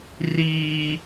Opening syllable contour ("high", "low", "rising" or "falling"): high